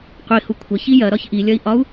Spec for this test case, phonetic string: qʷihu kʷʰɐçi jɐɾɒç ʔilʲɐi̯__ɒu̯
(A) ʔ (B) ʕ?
A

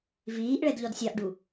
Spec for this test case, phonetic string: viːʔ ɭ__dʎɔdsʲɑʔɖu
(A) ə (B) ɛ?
B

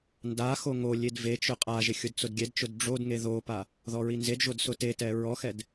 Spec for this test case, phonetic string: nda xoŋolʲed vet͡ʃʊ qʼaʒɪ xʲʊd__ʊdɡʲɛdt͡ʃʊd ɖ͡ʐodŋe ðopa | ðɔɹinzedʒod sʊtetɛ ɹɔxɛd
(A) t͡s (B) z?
A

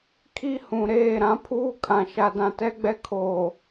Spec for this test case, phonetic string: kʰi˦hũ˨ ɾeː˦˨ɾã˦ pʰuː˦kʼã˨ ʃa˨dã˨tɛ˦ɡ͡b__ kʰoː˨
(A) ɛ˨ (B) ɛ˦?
B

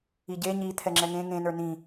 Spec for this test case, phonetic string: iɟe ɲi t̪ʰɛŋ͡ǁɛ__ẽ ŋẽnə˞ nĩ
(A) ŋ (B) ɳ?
A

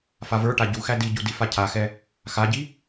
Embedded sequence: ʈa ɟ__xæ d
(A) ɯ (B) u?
B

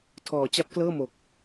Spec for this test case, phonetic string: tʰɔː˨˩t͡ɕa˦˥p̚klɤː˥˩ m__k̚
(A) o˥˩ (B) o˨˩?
B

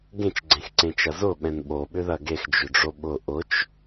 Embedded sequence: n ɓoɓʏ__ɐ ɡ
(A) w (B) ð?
B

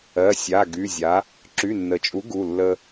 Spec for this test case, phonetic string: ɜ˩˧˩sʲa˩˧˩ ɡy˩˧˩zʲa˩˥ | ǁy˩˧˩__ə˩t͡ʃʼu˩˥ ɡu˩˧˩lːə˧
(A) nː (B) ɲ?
A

